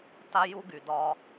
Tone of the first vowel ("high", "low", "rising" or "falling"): high